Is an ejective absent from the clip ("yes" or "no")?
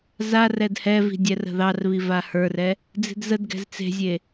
yes